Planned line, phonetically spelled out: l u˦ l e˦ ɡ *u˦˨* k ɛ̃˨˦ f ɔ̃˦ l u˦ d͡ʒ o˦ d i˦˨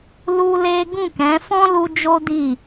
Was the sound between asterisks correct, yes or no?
no